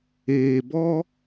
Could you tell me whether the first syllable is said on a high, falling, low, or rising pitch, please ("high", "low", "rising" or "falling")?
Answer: low